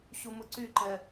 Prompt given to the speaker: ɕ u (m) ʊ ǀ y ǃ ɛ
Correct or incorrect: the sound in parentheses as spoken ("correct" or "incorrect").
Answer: correct